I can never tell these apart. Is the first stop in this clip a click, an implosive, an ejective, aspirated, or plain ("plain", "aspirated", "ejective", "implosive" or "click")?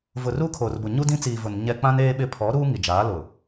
aspirated